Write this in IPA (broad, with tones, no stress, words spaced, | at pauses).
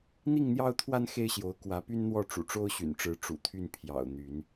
n̪i˥˨ŋn̪jɑ˦ʊ̯ t̪ʰwa˦n xe˦ɪ̯ɕjo˨˦ʊ̯ kwä˨˦py˦nn̪wɔ˥˨ ʈ͡ʂṵ˨˩ʈ͡ʂo˦ʊ̯ɕy̰˨˩nʈ͡ʂɻ̩˨˦ ʈ͡ʂṵ˨˩t̪ʰy˥˨n pʰjɑ̰˨˩ʊ̯ n̪y˨˦n